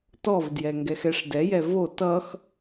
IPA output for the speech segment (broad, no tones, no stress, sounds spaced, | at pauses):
t ɔ v d j ɛ ŋ ɡ ɛ x ɛ ʂ d ɛ j ɛ v o t ʌ x